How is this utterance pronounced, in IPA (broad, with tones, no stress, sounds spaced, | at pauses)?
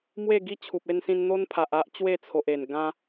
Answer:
m w e˥˧ ɡ i˥˧ t͡ɕʰ u˨ p̚ e˧ n s ĩ˧ n n̪ o˦ n pʰ a˨ ʔ a˦ ʔ t͡ɕ w e˥˧ t͡sʰ o˨ ʔ e˨˩ n ɡ ã˧